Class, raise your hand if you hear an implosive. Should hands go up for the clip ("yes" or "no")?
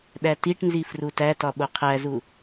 yes